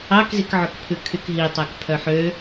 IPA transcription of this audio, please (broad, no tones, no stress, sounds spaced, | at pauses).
ɑ k z i k ʕ ɵ k pʰ ʉ kʰ y k ɦ i tˤ æ k pʰ œ ħ ø